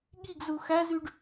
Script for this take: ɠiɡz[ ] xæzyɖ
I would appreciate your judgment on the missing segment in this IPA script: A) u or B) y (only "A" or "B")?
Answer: A